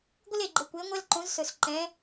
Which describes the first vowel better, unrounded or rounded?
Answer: unrounded